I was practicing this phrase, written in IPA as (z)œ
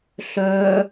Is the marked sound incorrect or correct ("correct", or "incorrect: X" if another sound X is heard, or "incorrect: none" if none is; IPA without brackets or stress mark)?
incorrect: ɬ